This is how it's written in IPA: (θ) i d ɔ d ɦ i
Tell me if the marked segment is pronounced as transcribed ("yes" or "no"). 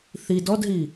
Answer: yes